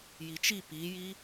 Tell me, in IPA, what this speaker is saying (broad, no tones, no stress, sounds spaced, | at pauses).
j i t͡ʃ i p i j i